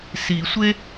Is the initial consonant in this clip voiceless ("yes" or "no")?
yes